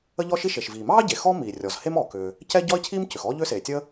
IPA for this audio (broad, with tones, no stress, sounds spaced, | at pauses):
ə˥ ʎ ɔ˥ ʃ i˥ ʃ e˩ ʃ v iː˩ m ɑː˥ ɟ e˩ x ɔ˥ m iː˩ rʲ ɔ˩ z h e˥ m ɔː˩ k ʏː˩ | c ɛ˥ ɟ ɔ˥ ɪ̯ cʰ iː˥ m c ʏ˩ x ɔː˥ ʎ ʏː˥ s eː˩ tʲ ə˥